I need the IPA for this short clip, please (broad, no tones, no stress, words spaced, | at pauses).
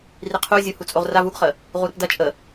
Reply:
riqʰu zʲuhut͡sʼoʁrav uɡχə | ʁuɾəpdɐ t͡ʃʼə